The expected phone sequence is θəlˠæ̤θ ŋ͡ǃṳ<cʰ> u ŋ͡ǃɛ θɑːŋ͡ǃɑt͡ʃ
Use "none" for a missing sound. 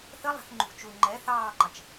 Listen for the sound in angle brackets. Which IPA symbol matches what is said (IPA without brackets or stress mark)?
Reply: t͡ʃ